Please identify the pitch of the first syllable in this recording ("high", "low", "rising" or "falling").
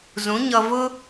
rising